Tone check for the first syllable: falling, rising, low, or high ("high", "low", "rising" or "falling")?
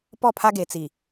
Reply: falling